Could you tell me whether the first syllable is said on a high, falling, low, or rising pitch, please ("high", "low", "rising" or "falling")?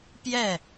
falling